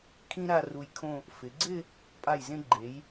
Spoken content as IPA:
kʰ ĩ˥ ɾ a˥˧ r u˧ j kʰ õ˥˧ | f ɪ˩˧ ɡ͡ǀ ɪ˥˧ | pʼ a˧˩ j z ẽ˧ ɡ͡ǃ e˩˧ j

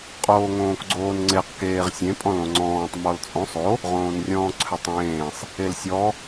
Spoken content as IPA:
qʼ oː ŋ õː k ɡ͡ǀ oː n ŋ͡ǀ e q k eː ʁ sʲ ẽ pʼ ɔ̃ l õ ŋ͡ǀ ɔ̃ː tˤ m ɔ l t͡sʼ õ sˤ o | ʁ õː n rʲ ɔ̃ː ǀʰ ʏ tˤ ẽː sˤ | e l sʲ ɔ

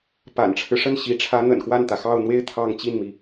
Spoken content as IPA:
p a̰˨˩ n ʈ͡ʂʰ ɻ̩˦ ʂ ə˥˩ n ɕ i˧˥ ʈ͡ʂʰ ä˧˥ n̪ ə̰˨˩ n x w a˥˩ n t̪ ä˩ x ɑ˥˧ ʊ̯ n̪ w e˥˧ ɪ̯ t̪ʰ ɑ˥˧ ŋ t͡ɕ i˥˩ n m i˩

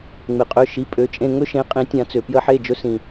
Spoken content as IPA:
ŋ͡m e˩ qʼ ø˩˧˩ ʃ i˩˧˩ pʼ ø˩˧˩ t͡ʃʼ ẽ˦˨ ŋ ɵ˦ ʃ ẽ˨˦ qʼ ĩ˨˩˦ tʲ ã˨˩˦ t͡s ø˩ p j ə˨˩˦ ħ e˩˧˩ d͡ʒ ɵ˨˦ s ĩ˩

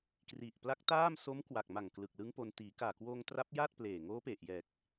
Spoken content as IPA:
k r i˨˩ ʔ p l a˦˥ k̚ t aː˥˩ m s o˦˥ m k w a˨˩ k̚ m a˨˩ ŋ k l ɯ˨˩ k̚ l ɯ˦˥ ŋ p o˧ n t iː˩˦ k aː˨˩ k w oː˧ ŋ t r a˦˥ p̚ j aː˥˩ t̚ p l eː˨˩ ŋ oː˦˥ p e˨˩ ʔ j ɛː˨˩ k̚

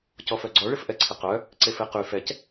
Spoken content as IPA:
c ɔ f œ ɡ͡ǀ ɔ ɭ ɪ f ʔ ɛ ǀʰ ɪ q œ | ǀ e f e q y f ɛ c

